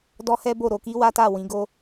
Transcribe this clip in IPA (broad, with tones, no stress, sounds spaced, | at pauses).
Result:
d ɔ˦ h ɛ˦ b o˦˨ ɾ o˧ k i˦ w a˦ t a˦˨ w ĩ˨˦ ɡ o˦